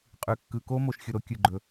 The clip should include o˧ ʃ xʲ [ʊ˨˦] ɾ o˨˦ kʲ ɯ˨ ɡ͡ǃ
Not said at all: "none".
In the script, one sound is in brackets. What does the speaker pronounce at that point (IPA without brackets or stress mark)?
ʊ˧